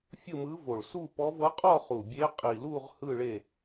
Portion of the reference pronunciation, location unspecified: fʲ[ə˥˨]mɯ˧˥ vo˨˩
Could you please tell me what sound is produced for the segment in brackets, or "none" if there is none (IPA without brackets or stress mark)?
ɯ˥˨